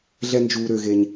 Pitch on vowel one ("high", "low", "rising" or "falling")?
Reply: high